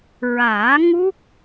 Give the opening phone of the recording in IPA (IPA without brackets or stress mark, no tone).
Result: ɹ